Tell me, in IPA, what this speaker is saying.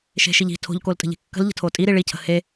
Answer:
ʃ e̤ ʃ i ʎ i̤ tʰ o̤ ʎ k o l tʼ ə̤ ʎ e̤ kː ə̤ l ʎ ə̤ tʰ o tʼ i ɾ i ɭ i cʰ ə̤ h e

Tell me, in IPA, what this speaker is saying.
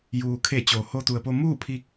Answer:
j uː˩ kʰ e˧˩ t͡ɕ oː˩ h o˧ t̪ u˩ ə̯ p o˧ m uː˥˨ pʰ iː˧ k̚

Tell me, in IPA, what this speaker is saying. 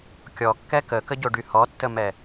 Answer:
kʲ ɔ kː ɛ k ə k ə ɟ o ɖ y h ɔ tː ə m ɛ

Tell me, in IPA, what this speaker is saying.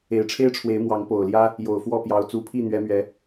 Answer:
e˨˩ ɪ̯ ʈ͡ʂʰ e˦ ɪ̯ ʈ͡ʂʰ w e˨˦ ɪ̯ m w ɑ˨˦ ŋ p o˨˩ ʊ̯ l j ä˦ | j o˨˩ ʊ̯ f w ɔ˥˨ p j ɑ˨˦ ʊ̯ t͡s u˨˦ pʰ i˥˨ n̪ ɥ ɛ˨˦ m ɥ ɛ˨˦

